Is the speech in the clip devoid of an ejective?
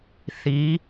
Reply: yes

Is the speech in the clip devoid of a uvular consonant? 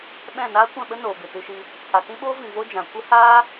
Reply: yes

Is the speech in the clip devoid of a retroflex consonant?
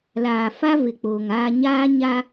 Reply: yes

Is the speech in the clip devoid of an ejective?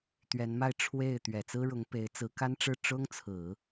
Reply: yes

